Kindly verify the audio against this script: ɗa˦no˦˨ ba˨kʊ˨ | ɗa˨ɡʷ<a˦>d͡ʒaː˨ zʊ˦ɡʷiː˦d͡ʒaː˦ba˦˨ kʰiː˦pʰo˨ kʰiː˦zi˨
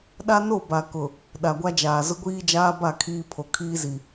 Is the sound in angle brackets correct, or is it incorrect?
correct